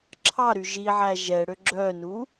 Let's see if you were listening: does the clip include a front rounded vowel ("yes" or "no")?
yes